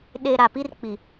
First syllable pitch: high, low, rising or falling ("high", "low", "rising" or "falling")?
low